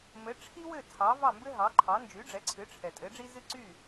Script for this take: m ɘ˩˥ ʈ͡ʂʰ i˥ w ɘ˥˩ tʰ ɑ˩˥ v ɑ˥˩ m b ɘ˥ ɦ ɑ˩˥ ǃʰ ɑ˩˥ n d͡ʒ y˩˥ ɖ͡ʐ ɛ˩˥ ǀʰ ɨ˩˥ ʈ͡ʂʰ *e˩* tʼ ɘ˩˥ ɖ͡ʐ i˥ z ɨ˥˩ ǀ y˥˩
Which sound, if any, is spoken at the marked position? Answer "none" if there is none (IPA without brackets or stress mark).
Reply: ɛ˩